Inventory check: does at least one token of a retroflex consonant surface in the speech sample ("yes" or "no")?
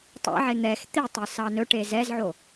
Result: yes